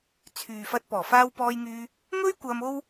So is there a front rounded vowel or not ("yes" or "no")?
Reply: yes